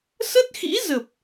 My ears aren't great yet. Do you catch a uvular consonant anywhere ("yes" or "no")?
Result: no